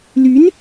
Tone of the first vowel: rising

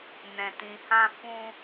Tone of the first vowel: low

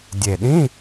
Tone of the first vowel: low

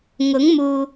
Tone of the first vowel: rising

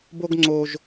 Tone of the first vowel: high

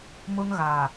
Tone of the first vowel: high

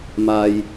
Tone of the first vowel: low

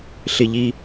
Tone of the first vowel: low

